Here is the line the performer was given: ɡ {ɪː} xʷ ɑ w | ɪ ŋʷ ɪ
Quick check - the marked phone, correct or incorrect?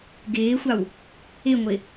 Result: correct